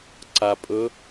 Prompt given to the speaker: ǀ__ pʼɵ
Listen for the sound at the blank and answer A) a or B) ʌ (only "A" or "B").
A